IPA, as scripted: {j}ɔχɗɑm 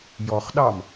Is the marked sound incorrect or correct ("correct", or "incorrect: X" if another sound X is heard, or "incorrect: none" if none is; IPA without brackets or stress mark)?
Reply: correct